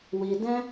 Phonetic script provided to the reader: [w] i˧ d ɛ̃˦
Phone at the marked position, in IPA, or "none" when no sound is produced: w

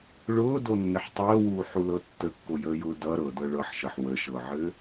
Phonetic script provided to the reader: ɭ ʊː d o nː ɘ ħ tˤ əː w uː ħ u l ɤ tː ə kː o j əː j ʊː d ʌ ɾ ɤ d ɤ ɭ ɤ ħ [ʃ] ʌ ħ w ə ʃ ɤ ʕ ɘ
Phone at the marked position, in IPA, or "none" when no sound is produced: ʃ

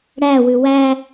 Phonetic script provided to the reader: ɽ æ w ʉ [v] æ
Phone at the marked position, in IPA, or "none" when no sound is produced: w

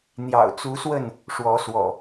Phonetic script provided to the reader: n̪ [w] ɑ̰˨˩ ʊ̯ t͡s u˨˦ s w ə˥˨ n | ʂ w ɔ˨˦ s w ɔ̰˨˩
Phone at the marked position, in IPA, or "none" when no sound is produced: j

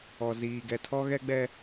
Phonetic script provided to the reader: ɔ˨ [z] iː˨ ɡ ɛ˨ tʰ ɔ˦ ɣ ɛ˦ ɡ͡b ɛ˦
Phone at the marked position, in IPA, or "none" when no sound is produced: z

